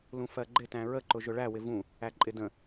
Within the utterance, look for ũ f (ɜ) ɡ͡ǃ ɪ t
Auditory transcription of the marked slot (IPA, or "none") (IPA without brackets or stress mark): ɜ